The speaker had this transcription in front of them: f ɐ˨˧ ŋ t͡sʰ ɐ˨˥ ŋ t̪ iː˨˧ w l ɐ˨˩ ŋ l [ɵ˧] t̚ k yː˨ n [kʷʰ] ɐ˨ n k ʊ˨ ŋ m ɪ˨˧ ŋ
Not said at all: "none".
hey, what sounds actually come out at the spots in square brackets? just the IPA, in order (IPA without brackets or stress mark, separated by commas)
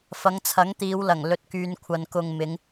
ɵ˨, kʷʰ